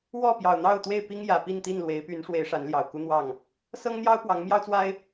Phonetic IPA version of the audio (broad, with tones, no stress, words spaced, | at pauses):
wɔ˥˨pjɑ˨˩ʊ̯n̪ɑ˥˨ʊ̯t̪we˥˨ɪ̯ pi˦ŋjä˨˩ pi˥˨nt̪i˥˨nlwe˨˦ɪ̯py˨˦n ʂwe˨˦ɪ̯ ʂa˨˦nljɑ˨˩ʊ̯ ku˦n̪wɑ˥˨ŋ | sɤ˦ŋn̪jɑ˦ʊ̯ pwɑ˨˦ŋ mjɑ˦ʊ̯t͡swa˦ɪ̯